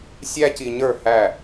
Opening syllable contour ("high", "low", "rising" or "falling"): high